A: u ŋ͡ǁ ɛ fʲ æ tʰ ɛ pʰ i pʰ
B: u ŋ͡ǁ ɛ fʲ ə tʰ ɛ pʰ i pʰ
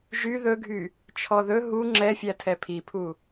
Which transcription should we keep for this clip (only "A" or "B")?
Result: A